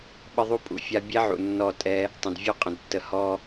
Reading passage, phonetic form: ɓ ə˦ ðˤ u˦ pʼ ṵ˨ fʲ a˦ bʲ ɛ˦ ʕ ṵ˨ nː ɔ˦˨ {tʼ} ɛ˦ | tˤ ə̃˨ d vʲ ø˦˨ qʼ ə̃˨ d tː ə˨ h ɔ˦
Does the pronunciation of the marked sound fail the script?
no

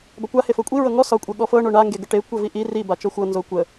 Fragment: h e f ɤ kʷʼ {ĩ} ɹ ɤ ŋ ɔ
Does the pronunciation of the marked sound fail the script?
yes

